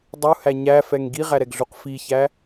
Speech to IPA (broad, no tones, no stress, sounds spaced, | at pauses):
dˤ u h æ ɲ æ f ɛ ŋ ɡ i ʁ æ ɾ ɛ ɡ ɮ u q f i ç æ